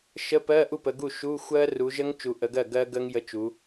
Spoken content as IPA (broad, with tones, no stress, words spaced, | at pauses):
ʃə˧˥˧pɜ˧˥˧ ʔu˥˩pə˨˦ɡu˥˩ ʃu˧˥˧xʷɜ˦˥ ru˨˦ʒə˦˥ŋ t͡ʃu˨˦ʔə˨˦ɡɜ˥˩ ɡɜ˦˥ɡə˦˥ŋ jə˧˥˧t͡ʃu˨˦